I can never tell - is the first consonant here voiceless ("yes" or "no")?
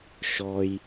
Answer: yes